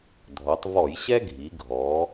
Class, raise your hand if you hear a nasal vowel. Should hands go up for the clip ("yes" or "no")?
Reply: no